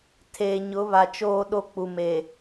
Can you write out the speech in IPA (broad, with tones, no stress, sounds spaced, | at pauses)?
tʰ eː˨ ɲ ʊ˨˦ β a˨ t͡ʃ oː˦ ɗ o˦ k͡p u˨ m e˨